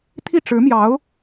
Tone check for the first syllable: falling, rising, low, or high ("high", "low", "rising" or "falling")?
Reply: falling